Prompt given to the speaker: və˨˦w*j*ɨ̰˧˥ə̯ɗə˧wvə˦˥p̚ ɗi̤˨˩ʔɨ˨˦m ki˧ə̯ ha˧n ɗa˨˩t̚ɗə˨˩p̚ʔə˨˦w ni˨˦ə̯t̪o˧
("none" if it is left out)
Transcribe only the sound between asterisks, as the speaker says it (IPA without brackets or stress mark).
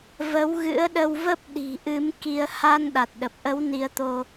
ɣ